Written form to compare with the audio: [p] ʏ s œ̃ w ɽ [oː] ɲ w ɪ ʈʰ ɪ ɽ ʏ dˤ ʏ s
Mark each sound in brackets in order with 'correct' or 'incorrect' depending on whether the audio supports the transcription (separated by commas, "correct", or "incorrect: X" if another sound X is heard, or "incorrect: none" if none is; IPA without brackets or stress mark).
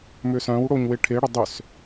incorrect: m, incorrect: o